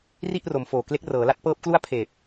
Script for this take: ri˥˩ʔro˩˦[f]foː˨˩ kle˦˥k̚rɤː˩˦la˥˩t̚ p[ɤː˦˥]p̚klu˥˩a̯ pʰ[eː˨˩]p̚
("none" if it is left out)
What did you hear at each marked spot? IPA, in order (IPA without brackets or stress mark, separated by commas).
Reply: m, ɤː˦˥, eː˨˩